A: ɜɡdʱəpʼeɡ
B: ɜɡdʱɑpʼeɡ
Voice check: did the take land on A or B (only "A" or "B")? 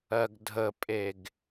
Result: A